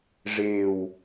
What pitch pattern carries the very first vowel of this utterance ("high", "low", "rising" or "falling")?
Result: low